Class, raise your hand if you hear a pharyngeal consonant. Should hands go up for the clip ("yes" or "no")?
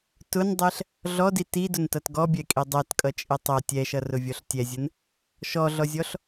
no